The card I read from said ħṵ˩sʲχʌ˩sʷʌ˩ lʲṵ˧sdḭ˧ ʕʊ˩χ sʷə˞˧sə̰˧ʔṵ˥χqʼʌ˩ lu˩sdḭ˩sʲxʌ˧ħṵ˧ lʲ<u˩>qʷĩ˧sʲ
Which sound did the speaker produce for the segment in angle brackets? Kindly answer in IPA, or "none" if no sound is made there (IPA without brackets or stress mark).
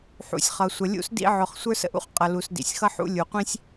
u˩